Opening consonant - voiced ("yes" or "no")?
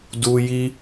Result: yes